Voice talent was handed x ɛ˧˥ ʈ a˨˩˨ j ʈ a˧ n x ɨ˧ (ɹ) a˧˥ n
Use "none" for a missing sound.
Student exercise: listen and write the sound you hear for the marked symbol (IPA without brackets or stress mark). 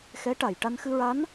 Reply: ɹ